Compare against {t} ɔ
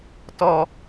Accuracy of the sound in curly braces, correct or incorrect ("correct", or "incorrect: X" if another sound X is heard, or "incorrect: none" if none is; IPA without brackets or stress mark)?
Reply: correct